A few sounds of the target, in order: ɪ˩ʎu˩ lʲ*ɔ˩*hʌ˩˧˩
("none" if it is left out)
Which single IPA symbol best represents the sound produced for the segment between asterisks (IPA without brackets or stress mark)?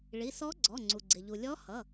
ɔ˧˥